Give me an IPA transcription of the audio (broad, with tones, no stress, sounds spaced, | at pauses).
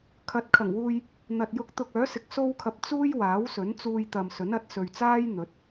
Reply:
kʰ ɐ˨˥ t̚ kʰ ɐ˨˩ ŋ w uː˧ j | n̪ ɐ˨ t̚ j ʊ˧ k̚ t̪ ʊ˧ k̚ œː˨˥ s ɪ˨˥ k̚ s o˥ w kʰ ɐ˧ p̚ t͡s uː˥ j w aː˨˥ w s ɵ˨˥ n t͡s uː˧ j t̪ ɐ˨ m s ɵ˨˥ n ɐ˨˥ t̚ s ɵ˨ ɥ t͡s aː˥ j n̪ ɵ˨˥ t̚